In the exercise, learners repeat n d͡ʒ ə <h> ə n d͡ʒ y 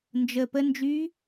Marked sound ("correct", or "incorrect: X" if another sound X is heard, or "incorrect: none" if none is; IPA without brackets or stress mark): incorrect: p